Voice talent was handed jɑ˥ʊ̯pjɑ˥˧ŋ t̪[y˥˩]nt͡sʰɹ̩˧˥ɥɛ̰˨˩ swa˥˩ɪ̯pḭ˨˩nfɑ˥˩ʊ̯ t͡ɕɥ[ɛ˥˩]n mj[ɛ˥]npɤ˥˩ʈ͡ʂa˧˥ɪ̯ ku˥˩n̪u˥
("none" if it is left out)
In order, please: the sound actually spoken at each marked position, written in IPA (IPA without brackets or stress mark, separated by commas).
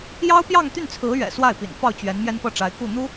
y˥˩, ɛ˧˥, ɛ˥